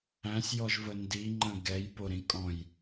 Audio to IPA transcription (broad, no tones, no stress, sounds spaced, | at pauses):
æ̃ sʲ j ɔ ʒ v ə n d i ŋ͡ǃ ə̃ ɡ ɛ j p o ɾ ĩ kʼ ɔ̃ j